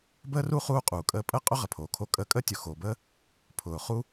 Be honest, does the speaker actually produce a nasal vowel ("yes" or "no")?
no